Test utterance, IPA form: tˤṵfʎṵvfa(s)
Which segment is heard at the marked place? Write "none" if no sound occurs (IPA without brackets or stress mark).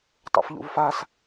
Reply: s